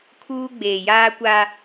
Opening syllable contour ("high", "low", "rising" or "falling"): high